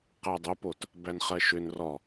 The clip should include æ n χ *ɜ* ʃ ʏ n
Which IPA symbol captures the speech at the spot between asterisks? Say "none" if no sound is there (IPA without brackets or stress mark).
ɜ